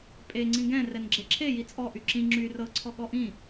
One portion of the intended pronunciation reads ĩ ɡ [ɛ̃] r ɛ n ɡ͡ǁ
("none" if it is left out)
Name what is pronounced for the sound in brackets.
ɛ̃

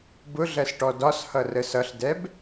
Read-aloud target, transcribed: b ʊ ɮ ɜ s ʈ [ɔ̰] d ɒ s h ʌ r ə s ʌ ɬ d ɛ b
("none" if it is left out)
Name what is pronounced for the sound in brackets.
ɔ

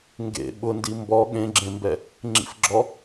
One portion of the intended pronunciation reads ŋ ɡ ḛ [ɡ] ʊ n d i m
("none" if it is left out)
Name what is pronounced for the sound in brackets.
ɓ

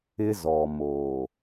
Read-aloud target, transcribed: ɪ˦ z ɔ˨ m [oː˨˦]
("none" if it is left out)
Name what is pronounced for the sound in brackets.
oː˨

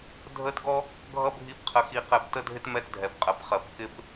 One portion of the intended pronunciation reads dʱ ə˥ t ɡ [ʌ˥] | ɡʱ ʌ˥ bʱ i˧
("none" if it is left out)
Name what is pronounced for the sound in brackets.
ɔ˥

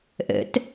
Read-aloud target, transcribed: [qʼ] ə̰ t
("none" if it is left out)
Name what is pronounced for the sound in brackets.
ʔ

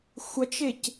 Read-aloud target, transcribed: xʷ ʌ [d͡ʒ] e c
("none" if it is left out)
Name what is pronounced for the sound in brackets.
t͡ʃ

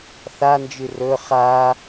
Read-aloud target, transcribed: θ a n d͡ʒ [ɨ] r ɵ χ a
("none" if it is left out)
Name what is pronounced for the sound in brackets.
ɨ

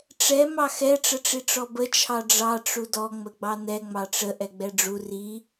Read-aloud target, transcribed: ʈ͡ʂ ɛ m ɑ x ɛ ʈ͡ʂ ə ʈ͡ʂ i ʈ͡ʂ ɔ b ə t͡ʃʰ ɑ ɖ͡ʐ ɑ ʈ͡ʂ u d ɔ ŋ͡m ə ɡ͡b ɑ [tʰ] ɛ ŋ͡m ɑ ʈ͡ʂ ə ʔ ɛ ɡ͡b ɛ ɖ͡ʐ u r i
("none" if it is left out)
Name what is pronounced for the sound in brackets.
n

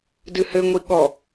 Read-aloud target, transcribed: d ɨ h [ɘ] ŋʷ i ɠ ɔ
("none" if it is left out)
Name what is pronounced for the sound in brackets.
ɘ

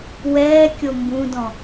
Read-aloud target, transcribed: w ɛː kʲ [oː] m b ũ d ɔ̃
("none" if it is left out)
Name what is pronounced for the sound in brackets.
o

